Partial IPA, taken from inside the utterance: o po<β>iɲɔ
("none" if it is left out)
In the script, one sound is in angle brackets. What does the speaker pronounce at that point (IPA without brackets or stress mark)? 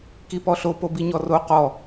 b